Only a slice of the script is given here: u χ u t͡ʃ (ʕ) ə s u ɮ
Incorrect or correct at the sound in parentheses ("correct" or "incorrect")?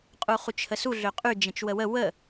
incorrect